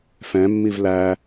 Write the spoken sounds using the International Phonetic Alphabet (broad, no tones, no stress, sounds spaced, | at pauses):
f ɛ̃ mː i v l æ